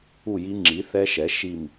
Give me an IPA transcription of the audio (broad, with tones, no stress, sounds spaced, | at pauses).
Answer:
u˥˨ j i˦˥ ŋ͡ǁ i˩˥ θ ɛ˦˥ ʃ ɛ˩˥ ʃ i˥˨ m